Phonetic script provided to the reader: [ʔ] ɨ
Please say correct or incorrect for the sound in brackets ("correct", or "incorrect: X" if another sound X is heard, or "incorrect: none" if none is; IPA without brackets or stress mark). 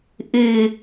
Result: correct